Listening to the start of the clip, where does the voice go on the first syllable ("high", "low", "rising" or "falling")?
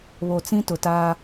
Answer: low